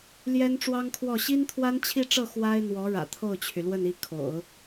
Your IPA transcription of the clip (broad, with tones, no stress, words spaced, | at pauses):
ljɛ˥nʈ͡ʂwɑ˥ŋkʰwɔ˥˩ ɕi˥nt̪ʰwa˥nt͡ɕʰi˥˧ʈ͡ʂɤ˥˩ xwa˥ɪ̯n̪wɔ˧˥ ɻä̰˨˩t̪ʰo˥˩ʊ̯t͡ɕʰy˩lwə˥˧n i˥˩ kʰo̰˨˩˦ʊ̯